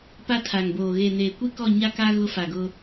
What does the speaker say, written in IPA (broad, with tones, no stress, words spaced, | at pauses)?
pa˦tʰa˨ŋboː˨ ɣe˨neː˨kʷi˦kɔ˦˨ ɲa˦ka˦ ɣʊ˦fa˨ɡʊ˦